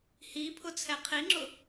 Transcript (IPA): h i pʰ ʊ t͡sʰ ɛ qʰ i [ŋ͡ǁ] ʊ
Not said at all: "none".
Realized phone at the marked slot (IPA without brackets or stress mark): ŋ͡ǁ